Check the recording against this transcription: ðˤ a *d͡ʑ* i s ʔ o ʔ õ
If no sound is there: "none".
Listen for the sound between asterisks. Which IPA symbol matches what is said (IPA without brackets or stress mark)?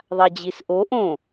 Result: d͡ʑ